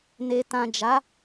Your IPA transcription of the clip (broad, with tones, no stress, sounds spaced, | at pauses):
n e˨ t ã˨ d͡ʒ a˨˦